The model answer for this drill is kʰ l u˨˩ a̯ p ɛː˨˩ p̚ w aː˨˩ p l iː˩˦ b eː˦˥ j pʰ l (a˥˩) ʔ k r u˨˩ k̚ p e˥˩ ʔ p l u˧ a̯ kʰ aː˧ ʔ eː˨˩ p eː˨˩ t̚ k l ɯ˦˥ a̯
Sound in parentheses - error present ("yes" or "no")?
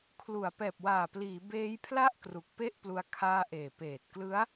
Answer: no